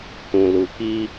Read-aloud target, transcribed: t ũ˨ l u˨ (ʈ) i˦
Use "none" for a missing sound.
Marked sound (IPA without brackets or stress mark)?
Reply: k